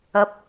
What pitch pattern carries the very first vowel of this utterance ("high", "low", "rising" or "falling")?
high